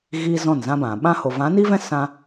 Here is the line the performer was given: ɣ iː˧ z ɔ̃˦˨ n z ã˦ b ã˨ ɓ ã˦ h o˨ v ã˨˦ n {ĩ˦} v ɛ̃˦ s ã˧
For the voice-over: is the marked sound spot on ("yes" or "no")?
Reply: no